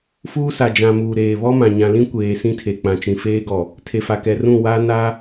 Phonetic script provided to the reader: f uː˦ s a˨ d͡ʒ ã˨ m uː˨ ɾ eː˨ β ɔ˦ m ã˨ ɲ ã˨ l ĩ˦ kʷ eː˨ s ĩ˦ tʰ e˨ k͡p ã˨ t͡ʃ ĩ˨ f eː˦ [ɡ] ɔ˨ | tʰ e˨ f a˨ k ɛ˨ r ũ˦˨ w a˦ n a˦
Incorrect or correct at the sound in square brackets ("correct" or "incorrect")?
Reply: correct